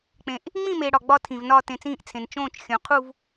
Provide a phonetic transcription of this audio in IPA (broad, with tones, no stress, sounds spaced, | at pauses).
k͡p ẽ˨ ʔ | ŋ͡m ĩ˥˧ m e˨ ɽ ɒ˨ ɡ͡b ɒ˥˧ tʰ ĩ˨ v n ɒː˥˧ t ẽ˨ t͡s ĩː˥˧ ʔ t͡sʰ ẽ˨ n t͡ʃ õː˥˧ t͡ʃ xʲ õ˨ qʰ u˥˧ v